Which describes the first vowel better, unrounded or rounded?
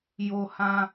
rounded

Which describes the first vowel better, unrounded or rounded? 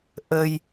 unrounded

